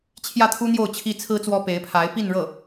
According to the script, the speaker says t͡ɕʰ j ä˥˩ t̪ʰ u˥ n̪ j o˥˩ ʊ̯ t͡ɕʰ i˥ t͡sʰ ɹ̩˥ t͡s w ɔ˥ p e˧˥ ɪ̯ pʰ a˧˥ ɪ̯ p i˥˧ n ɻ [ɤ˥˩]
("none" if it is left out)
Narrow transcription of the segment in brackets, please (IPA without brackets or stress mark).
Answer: ɤ˥˩